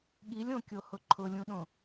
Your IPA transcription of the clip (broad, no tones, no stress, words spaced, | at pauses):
ɠilʲõkʲo hʊǃʰʊlʲũɗõ